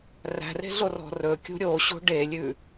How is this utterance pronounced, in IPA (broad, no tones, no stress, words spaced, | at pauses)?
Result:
ræ̤re̤ɮorɔ̤ rɵkʲṳ ɾʲoɕo̤ ɖelʲʉ